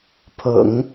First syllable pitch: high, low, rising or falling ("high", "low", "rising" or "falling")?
low